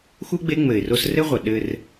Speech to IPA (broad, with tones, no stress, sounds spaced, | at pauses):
x u˦ ɡ͡b e˦ ŋ͡m ɘ˨ ɪ̯ r o˦ s r ɘ˦ ʁʷ ɐ˨ ɗ ɘ˦ r